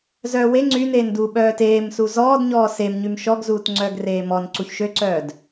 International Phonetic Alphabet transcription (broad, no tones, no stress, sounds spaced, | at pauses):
z œː w e ŋ͡ǀ y n eː n d uː ɓ œː t eː m s u z ɔː d ɲ ɔː s e m ɲ y m ʃ ɔ ɡ z uː t ŋ͡ǀ œ ɡ r eː m ɔ n ǀ u ç ʃ ø ǀ œː d